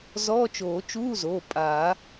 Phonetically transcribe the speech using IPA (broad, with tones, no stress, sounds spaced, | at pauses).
z ɔː˧˥˧ t͡ʃ oː˨˩˦ t͡ʃ uː˧˥˧ z oː˩˧˩ pʼ aː˨˩˦